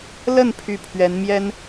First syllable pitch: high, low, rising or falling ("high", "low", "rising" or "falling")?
falling